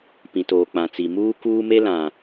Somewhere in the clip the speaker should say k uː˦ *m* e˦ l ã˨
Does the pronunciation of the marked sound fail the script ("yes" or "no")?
no